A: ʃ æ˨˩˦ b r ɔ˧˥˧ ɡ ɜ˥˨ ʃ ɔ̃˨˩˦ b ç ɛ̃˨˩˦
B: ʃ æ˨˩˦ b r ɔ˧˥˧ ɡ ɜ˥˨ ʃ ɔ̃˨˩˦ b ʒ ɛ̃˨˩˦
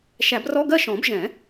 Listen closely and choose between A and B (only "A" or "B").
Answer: B